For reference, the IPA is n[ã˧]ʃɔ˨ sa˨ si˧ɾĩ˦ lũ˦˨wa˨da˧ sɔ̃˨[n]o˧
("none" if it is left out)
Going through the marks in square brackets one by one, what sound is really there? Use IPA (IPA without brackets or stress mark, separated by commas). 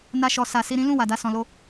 a˧, l